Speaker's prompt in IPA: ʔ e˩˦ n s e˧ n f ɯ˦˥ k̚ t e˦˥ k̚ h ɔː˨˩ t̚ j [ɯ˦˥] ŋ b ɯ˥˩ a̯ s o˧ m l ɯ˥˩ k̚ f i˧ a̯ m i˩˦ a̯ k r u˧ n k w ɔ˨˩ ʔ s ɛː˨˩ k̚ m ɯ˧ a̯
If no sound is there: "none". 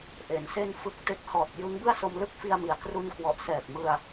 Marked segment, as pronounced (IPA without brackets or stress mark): ɯ˦˥